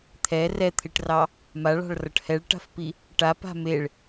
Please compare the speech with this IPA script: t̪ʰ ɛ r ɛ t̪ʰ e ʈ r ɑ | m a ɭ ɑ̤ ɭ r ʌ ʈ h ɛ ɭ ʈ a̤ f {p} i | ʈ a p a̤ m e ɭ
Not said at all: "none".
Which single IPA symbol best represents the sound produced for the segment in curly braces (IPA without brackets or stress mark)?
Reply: p